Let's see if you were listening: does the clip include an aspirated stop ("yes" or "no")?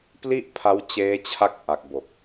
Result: yes